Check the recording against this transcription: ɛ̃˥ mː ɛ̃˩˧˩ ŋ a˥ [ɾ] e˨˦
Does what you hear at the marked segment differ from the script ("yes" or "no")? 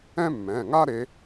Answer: no